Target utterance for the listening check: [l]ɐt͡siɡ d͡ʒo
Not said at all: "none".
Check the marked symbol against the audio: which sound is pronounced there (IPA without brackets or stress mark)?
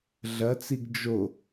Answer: ɮ